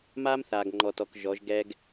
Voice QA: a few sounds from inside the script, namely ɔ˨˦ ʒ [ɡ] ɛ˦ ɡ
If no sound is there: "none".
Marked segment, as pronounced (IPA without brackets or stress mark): ɡ